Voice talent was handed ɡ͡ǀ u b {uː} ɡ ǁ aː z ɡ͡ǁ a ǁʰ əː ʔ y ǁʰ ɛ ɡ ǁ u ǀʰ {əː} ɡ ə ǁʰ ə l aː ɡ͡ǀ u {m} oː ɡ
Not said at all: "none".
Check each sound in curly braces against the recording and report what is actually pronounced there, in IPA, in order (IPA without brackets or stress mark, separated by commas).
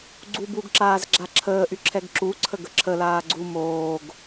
u, ə, m